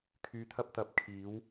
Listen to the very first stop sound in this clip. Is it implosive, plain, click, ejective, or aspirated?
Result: aspirated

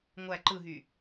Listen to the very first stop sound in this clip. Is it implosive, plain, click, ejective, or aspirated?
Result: click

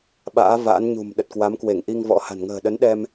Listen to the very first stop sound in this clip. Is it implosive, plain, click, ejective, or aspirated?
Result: implosive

